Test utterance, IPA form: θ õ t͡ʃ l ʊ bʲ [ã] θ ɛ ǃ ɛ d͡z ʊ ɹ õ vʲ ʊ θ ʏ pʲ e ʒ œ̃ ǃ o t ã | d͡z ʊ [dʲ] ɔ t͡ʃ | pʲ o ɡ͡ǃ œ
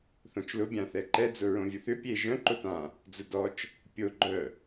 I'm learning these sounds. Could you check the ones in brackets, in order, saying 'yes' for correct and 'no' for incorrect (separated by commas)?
yes, no